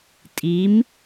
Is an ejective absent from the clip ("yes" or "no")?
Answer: no